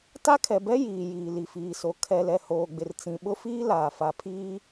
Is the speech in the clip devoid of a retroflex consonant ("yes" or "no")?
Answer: yes